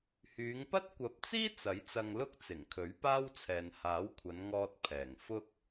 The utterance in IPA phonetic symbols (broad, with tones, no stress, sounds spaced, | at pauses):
h yː˨˧ ŋ p ɐ˥ t̚ kʷ ɐ˨˥ p̚ t͡s iː˥ t͡s ɐ˨˥ j t͡s ɐ˧ ŋ l ʊ˥ k̚ t͡s ɪ˨˩ ŋ kʰ ɵ˨˥ ɥ p aː˥ w t͡sʰ ɛː˨ n h aː˨˥ w kʷʰ ɐ˨˧ n ŋ ɔː˧ t̚ pʰ ɛː˨˩ ŋ f ʊ˧ k̚